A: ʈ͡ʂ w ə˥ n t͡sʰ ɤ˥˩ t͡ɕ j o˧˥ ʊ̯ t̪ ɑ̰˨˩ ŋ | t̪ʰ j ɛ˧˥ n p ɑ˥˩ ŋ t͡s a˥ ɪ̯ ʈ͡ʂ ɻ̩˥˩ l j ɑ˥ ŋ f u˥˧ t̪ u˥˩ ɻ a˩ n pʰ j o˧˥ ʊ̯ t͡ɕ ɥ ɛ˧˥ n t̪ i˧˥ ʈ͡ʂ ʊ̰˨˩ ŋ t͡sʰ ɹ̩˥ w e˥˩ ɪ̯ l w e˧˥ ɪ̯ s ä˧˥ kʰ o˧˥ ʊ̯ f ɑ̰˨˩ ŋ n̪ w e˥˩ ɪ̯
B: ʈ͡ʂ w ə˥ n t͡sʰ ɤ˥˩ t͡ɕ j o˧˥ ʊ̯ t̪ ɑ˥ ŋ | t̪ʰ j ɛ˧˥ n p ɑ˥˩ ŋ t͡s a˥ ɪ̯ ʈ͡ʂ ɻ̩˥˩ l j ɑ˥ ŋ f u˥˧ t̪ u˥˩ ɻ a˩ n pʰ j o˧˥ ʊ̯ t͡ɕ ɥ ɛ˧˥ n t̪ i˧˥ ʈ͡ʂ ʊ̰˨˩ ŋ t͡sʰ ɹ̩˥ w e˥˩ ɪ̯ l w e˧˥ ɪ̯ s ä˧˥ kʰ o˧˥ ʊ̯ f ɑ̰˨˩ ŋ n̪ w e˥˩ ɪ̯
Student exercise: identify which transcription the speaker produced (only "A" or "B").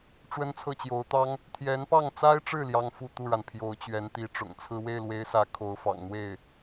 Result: B